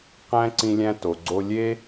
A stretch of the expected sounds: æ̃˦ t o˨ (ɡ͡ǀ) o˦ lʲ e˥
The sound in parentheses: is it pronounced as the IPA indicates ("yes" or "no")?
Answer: yes